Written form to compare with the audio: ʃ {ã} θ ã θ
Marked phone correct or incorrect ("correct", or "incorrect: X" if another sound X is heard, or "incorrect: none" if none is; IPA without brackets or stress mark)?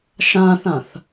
correct